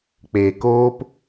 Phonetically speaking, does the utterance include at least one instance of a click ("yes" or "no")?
no